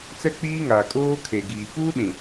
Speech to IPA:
t͡sɛ˦k͡piː˦ŋaː˨ kʼoː˦ kʰe˨ɡiː˨ puː˦ɗĩ˨

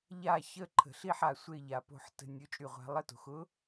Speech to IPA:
ʎa˦˨ çə˦˨ǃʰə̤˨ɬi˦˨ħa˨ sʷe˦˨ʎa˨po̤˦˨ħtə̤˦˨ nʲo˧˥t͡ʃʼy˦˨ʁʷa̤˧˥ lˠə˦˨to̤˨xʊ˧˥

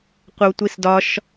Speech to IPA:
qʷəwtʷisdɒʃ

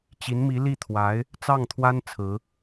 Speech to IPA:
t͡ɕi˧˥nmi˧˥li˥˩t̪ʰwa˧˥ɪ̯ | t͡sɑ˥˩ŋt̪ʰwa˥n t͡sʰɹ̩˧˥

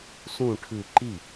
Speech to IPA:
sũ ʈʰɯ ǃi

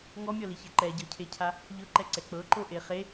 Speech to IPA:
ŋɔmʲɔliçɛ ǃɛɟɤcʰecʰa | ʎɤǃɛǀɛ k͡pɤǃoʔe χe

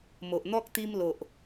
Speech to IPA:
mo˨ʔn̪ɔ˦k̚ t̪i˧mlo˨ʔ

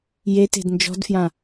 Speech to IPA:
jete̤d nd͡ʒɔ̤dfjã

